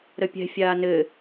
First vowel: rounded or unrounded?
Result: unrounded